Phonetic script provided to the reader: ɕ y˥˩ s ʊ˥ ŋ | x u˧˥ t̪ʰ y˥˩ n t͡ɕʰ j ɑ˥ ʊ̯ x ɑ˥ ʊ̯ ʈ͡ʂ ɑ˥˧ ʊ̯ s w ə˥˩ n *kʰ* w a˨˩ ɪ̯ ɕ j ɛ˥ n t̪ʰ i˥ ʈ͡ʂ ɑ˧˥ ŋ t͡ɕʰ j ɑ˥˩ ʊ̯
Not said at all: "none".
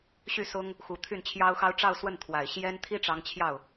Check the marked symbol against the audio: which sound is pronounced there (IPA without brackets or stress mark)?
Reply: t̪ʰ